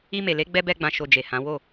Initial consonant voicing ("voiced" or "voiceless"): voiced